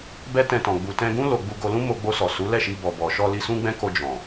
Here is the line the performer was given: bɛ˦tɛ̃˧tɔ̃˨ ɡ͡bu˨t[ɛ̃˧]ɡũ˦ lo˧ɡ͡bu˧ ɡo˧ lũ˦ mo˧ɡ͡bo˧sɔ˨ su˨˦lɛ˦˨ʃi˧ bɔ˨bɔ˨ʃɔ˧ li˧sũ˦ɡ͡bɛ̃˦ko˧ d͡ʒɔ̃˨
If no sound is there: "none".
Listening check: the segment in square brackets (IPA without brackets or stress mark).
ɛ̃˧